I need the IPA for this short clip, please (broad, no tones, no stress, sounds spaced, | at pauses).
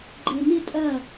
ɡ͡ǃ e m ɪ tʼ ɐ